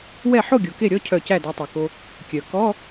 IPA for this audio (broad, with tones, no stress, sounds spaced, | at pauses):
w ɛ˥˩ ħ o˥˩ ɡʲ o˩ k e˥˩ ɾʲ ɔ˧˥˧ cʰ œ˧˩ c æ˥˩ d æ˧ tˤ æ˩ k o˧ | kʲ œ˩ k ɔ˧˥˧